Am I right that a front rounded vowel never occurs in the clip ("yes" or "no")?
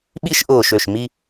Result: no